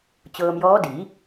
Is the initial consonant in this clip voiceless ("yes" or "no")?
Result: yes